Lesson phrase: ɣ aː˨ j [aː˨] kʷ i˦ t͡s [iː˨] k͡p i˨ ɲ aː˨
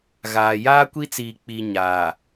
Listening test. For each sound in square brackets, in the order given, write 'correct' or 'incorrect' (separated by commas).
incorrect, correct